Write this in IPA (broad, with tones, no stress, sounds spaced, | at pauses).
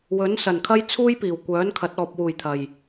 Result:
w ɵ˨˥ n s ɐ˨˩ n kʰ ɐ˥ j t͡sʰ uː˥ j p iː˨˩ w kʷ œː˨˥ n kʰ ɐ˨˥ t̚ ɔː˨ p̚ w uː˨˩ j t̪ʰ ɐ˨˩ j